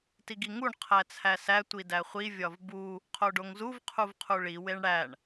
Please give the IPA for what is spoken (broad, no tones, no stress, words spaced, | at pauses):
tiɡiŋuɳ qʰæt͡sʰæsæ tʷidæχʷi vʲɒvbu | qʰoɖoŋzuv qʰuvqʰuɭi weɳɽæɳ